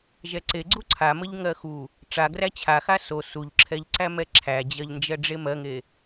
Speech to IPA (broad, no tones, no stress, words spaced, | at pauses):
ʒɛǀeɡ͡ǀu ǀʰaməʎ ŋɜxu | ʈ͡ʂaɡræ t͡ɕʰaxa so suʎǁʰɛʎǀæ mɛǁʰæd͡ʑɜʎnd͡ʒɜ ɖ͡ʐemɜŋe